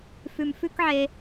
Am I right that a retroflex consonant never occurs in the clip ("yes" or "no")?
yes